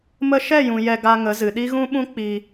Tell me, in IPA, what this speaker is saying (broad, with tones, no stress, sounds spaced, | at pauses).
m ə˧ ʃ ɛ˦˨ j ũ˨ j ɛ˧ ɡ a˧ ŋ ə˨˦ z ɨ˨ ɗ i˦ ɣ ũ˦ ɓ ũ˦ k͡p i˧